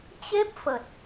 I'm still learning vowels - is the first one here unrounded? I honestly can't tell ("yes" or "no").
yes